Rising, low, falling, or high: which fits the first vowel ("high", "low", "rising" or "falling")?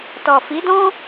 low